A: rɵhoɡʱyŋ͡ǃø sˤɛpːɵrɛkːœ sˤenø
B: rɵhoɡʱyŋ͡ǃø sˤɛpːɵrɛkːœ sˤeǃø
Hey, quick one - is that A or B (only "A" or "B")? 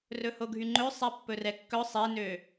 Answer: A